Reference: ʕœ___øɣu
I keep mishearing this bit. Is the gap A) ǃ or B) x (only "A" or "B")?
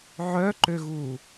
A